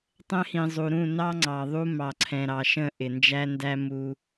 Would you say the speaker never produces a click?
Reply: no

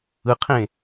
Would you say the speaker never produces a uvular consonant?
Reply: no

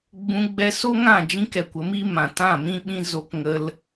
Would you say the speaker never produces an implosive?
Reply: no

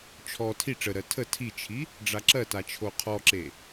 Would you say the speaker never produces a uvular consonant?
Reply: no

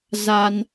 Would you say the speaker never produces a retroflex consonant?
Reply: yes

